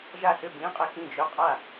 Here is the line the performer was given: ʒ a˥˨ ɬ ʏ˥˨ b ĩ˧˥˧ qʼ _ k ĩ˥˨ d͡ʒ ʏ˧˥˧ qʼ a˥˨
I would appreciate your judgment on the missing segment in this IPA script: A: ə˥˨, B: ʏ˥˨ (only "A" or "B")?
A